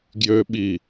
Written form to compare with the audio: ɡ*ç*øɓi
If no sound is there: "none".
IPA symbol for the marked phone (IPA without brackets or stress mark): j